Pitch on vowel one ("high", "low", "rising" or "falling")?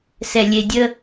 low